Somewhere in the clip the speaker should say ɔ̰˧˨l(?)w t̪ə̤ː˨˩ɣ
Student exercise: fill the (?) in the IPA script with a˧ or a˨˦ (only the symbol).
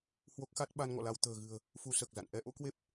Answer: a˧